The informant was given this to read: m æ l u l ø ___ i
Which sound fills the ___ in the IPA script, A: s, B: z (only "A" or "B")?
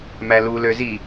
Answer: B